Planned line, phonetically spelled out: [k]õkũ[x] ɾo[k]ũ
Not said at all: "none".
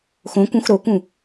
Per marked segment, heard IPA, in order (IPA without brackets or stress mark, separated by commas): x, x, k